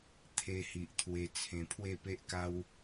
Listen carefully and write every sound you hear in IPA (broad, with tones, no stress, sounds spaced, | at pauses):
t̪ʰ e˧ h i˨ ʔ t̪ʰ w e˧ t͡sʰ ẽ˧ pʰ w e˥˧ p e˦ ʔ k a˦ w